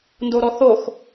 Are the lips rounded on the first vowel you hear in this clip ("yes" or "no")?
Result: yes